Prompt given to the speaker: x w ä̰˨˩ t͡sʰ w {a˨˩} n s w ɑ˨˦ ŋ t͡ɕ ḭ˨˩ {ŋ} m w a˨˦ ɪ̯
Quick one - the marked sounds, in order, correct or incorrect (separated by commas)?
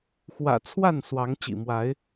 incorrect, incorrect